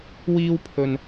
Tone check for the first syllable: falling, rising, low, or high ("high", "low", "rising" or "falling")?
high